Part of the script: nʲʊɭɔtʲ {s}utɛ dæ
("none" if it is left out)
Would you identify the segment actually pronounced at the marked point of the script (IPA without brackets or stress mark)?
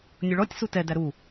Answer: s